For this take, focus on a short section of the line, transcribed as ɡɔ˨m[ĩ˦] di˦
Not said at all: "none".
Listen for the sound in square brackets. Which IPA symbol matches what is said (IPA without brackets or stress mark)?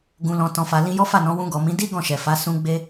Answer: ĩ˨˦